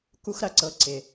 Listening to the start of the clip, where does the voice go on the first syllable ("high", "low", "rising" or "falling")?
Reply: high